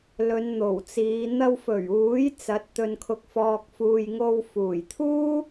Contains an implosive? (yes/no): no